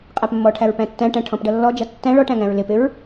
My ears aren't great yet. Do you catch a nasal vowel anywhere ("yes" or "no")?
yes